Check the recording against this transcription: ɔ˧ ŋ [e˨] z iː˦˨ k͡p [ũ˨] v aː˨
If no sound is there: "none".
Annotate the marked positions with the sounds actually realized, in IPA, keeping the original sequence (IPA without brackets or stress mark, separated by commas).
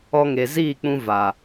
e˨, ũ˧